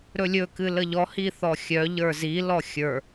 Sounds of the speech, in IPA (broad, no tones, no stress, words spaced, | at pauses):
ɾɵlʲɵ kɨləʎɔ hiθɔxʲœ ʎə˞zi lɔxʲə˞